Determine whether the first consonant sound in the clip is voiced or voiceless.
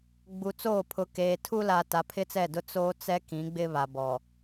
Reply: voiced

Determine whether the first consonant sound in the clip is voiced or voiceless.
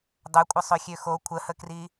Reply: voiced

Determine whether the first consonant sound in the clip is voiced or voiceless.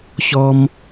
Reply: voiceless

